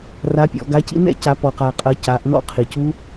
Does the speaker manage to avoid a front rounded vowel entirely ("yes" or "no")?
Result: yes